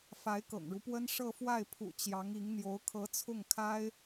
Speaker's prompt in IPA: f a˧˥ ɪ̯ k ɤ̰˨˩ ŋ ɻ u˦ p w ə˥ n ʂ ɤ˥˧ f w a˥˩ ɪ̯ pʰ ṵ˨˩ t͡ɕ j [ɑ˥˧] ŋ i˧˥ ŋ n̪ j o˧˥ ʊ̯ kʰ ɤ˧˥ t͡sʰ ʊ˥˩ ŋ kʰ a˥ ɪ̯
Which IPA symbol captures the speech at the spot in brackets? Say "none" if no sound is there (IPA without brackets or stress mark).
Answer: ɑ˧˥